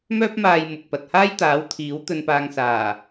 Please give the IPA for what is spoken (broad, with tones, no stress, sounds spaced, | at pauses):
m œː˥ p̚ m aː˧ j m ʊ˨ k̚ p ɐ˨ t̚ h aː˥ j t̪ aː˨˥ w t̪ʰ iː˨˥ w t̪ ɵ˧ n p aː˧ ŋ s aː˨˩